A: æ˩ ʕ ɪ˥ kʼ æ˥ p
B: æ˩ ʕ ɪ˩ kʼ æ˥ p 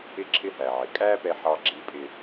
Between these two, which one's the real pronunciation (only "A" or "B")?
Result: B